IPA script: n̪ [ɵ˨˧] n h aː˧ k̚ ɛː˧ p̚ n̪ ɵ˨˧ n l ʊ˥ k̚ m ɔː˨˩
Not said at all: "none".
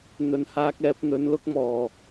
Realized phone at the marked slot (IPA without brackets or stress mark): ɵ˨